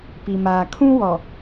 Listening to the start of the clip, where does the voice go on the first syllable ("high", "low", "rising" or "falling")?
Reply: low